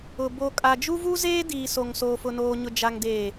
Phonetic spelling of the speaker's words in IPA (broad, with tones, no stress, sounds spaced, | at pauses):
ʊ˨ b o˨ kʼ a˨ d͡ʒ u˦ v u˦ z eː˦ d iː˨ s o˨ ŋ s oː˨ f ʊ˨ n oː˨ ɲ ʊ˨ d͡ʒ a˨ ŋ d eː˨